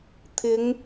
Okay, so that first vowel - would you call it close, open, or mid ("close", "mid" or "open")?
close